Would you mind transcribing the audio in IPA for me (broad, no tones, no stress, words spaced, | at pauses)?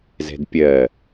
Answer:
zɛ̤dpʲɜ